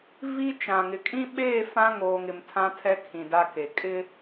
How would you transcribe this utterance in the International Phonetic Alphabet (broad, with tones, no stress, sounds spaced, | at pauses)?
v i˦ t͡ʃ ã˨ ŋ ɪ˨ kʼ ĩ˦ ɓ eː˦˨ f ã˦ ŋ oː˨ ŋ ɪ˨ m tʰ ã˦ tʰ ɛ˦ kʰ ĩ˨ d a˦ k e˨ kʼ ɪ˦